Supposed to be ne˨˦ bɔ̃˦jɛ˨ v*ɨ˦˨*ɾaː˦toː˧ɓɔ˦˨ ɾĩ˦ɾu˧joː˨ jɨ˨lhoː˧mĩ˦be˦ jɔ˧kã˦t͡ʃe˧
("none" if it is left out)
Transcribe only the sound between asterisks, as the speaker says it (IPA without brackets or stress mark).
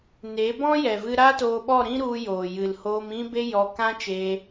ɨ˧